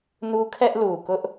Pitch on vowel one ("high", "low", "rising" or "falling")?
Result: high